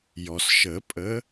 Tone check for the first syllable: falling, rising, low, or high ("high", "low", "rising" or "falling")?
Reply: low